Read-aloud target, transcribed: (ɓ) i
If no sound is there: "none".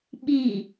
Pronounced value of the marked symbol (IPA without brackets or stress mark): ɓ